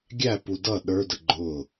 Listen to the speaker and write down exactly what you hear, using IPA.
ɡʲæpu dʌ ɗə˞də ɡ͡ǃʊ

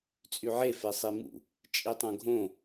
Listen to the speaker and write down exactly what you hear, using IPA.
t͡sʼyʕe fesˤimṵ | t͡ʃʼitˤõɡʱõ

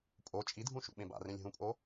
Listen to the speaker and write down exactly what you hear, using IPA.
pʼo t͡ʃʼidʱũʃṵɓẽb a̰rẽlʲ ɦũpʼo

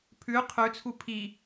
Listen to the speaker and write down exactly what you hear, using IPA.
pʰʉ qʰʉt͡sʰu pʰi

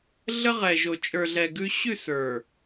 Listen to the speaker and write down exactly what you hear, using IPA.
ɮə˦ʁɛ˨ʒo˨ t͡ʃʼə˞˨ɮɛ˨ ɡʉ˦ ɕʉ˦˨s ə˞˨

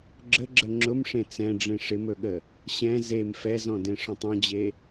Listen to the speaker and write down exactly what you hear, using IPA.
ɡ͡ǁəɡ͡ǁə ŋ͡ǁʊmʂẽ t͡sɛ̃ɖ͡ʐẽ ʂɪmɵɠə | ɕɛ̃ zem fɛzɔ̃dẽʂɔ̃tˤ ɔ̃d͡ʑe

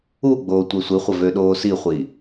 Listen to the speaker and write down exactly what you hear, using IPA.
uɡ͡boː tʷɛsʷiχʷə vøɗoːsiχʷi

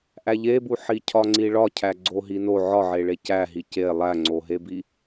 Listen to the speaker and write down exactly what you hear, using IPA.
ʔæʎebu ħicʰɒŋ͡ǀiɭɒ cʰæɡ͡ǀoɦino ʕɒʕeɭe cæɦi ce lˠæŋ͡ǀoɦebi

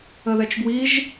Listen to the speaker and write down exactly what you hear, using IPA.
əðɛt͡ʃɡwiʒ

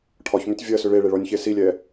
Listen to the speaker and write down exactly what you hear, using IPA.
ʈʰɒçmʏtʲ vʲɜsʏ ɭeɭeɭɔnʲçe silʲɛ

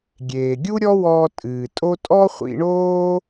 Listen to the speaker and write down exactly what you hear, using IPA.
ɡʲeː˩ɡʲu˥ɾʲɔ˥wɔː˧ tʼɨː˩tʼo˥ tʼɔ˥χʷḭ˧ɳoː˥

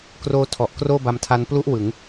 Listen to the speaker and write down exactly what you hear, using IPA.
kroː˦˥tʰɔ˨˩ʔkroː˥˩ ba˧mtʰa˦˥n plu˦˥ʔ wɯ˩˦ŋ

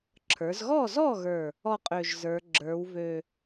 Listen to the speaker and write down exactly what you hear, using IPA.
ǁʰə˞˩˧zɣɔ˥˩zɔ˥˩ɣə˞˨˩ | ɔ˥˩qʼø˨˩ʒzə˞˩˧ ɡ͡ǁə˞˩˧wvø˨˩

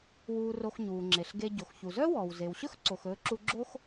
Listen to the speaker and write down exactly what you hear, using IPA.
wuː˧ro˧xɲuː˩ŋ͡ǁe˩ɬ ɡe˧ɟo˩xçu˩ zœ˥wɔː˩wze˩wɕɵ˥x ǀo˩xɵː˧ ǁu˧ɡ͡ǁo˥x

